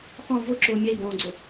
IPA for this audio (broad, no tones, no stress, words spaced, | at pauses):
χɔ̃ vʊǁʊː mʲɛi̯bɔ̃ːɡ͡ǀʊ